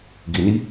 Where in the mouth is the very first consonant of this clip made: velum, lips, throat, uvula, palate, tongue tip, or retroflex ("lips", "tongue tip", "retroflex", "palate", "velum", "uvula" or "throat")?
velum